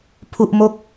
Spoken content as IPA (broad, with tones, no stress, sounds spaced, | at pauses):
pʰ u˥˩ ʔ m o˥˩ k̚